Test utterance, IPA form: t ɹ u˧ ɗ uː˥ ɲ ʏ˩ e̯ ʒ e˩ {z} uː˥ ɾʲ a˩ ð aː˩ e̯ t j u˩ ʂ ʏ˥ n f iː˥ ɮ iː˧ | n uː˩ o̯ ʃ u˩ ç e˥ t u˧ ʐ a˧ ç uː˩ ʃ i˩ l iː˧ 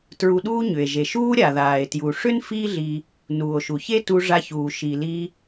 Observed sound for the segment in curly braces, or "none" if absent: ʃ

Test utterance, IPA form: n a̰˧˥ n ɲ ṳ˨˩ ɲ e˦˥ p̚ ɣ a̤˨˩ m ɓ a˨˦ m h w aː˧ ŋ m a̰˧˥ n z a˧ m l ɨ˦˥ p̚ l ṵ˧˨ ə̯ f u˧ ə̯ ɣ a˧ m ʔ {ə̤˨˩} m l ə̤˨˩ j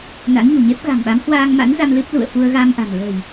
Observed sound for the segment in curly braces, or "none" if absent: a̤˨˩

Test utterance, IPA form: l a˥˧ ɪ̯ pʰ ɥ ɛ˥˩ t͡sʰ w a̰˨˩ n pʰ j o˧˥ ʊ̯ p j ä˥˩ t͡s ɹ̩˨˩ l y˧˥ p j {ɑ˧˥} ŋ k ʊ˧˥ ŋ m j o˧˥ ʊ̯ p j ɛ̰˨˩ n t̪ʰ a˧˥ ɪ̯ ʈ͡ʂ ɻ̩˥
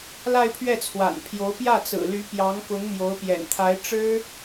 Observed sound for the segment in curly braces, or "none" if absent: ɑ˧˥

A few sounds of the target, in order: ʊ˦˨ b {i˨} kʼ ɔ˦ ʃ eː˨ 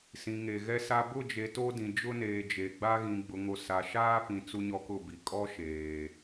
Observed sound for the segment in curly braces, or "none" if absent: i˨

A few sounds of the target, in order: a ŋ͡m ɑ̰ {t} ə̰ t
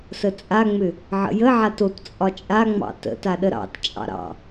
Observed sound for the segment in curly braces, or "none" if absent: t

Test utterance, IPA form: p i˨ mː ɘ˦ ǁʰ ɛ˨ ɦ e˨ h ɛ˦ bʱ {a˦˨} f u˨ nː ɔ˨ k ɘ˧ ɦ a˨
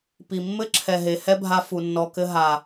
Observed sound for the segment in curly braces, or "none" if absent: a˧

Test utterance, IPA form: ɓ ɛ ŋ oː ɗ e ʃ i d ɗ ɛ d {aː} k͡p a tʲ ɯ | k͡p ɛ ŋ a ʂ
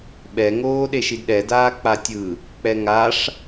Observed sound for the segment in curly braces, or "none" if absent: aː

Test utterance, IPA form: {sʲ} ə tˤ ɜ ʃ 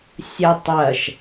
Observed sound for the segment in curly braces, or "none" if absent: sʲ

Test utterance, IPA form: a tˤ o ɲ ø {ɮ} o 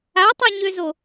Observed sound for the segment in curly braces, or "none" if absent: z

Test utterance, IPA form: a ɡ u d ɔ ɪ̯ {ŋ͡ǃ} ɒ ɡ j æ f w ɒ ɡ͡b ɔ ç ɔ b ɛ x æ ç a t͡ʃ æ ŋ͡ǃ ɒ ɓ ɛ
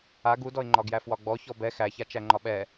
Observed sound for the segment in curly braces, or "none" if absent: ŋ͡ǃ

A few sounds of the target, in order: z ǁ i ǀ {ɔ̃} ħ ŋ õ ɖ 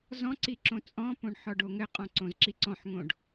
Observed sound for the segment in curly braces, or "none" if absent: ɔ̃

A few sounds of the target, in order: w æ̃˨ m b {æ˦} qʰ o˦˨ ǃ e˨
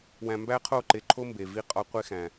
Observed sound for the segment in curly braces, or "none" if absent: æ˦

